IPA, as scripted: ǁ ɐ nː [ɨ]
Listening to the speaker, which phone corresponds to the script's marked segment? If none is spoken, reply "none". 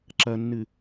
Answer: ɨ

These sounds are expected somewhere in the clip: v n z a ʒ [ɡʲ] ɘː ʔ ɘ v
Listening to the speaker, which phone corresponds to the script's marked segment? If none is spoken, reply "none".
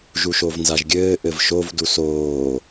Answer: ɡʲ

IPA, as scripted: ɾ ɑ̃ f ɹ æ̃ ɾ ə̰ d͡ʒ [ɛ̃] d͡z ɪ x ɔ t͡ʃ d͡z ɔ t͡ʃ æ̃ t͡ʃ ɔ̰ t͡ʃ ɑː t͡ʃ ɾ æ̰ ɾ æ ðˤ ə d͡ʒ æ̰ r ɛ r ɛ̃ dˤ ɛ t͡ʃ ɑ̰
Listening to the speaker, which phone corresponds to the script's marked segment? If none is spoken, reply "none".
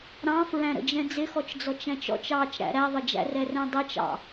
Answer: ɛ̃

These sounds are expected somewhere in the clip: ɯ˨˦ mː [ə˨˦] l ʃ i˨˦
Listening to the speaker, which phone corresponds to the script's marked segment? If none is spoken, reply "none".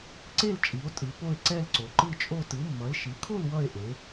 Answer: ʌ˨˦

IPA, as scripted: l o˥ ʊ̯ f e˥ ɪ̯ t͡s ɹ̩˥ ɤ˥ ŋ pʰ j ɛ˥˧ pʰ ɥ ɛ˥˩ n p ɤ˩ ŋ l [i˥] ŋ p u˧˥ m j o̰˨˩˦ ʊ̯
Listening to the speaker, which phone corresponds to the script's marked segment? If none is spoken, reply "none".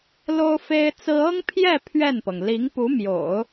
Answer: i˧˥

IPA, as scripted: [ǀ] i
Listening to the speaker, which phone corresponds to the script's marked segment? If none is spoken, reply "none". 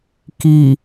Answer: k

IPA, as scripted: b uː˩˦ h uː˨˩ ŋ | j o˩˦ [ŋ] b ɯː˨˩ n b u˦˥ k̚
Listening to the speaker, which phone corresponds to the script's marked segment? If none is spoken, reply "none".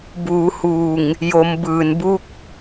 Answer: m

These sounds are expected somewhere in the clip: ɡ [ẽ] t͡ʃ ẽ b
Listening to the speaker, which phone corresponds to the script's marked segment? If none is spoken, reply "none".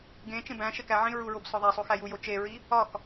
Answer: ẽ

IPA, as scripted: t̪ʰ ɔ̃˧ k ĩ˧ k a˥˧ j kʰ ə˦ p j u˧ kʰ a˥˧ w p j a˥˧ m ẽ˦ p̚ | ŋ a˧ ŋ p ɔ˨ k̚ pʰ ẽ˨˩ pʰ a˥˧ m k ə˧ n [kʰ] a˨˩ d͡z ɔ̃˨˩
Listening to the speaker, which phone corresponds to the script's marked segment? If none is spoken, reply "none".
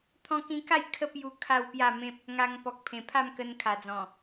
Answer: kʰ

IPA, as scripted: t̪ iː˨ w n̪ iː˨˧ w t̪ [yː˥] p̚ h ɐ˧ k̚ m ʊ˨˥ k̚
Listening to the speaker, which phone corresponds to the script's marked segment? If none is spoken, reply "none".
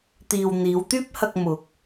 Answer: yː˥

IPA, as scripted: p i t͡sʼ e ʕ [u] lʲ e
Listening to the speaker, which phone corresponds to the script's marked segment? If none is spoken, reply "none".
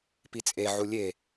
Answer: u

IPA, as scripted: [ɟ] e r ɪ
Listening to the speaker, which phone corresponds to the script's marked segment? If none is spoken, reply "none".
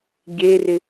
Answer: ɟ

